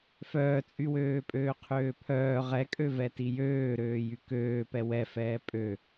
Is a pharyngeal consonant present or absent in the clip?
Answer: absent